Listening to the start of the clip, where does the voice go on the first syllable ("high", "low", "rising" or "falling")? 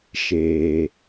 low